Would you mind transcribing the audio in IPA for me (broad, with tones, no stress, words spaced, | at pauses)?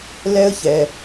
lɛ˦ə̯çɛ˨